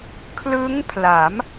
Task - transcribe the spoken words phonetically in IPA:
kʰlɯ˦˥ŋpʰla˩˦m

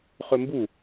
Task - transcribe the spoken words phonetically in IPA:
χɵmbu

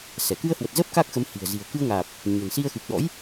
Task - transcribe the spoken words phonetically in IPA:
sɛ˧˩ kɨ˧ə̯hwə˨˩t̚zəː˦˥p̚ kaː˦˥k̚xə˨˦m hi̤˨˩ə̯ zi̤˨˩ə̯kɨ˧ə̯ŋaː˨˩p̚ | ɲə̤˨˩nsi˧ə̯ xɨ˨˩p̚ɗɔ̰˧˥j

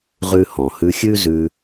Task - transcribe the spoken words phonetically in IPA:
ʁʉ˧hɔ̃˩ hʉ˧xʲʉ˥ zʉ˧

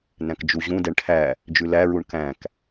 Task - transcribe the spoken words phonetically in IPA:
næ̃kd͡ʒuʑũdɛɳ ʈʰæ | d͡ʒʉlæɹuɳ kæ̃k

